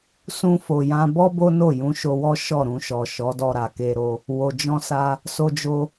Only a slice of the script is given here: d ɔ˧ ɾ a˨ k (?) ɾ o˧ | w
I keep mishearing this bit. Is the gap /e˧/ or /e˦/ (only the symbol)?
e˧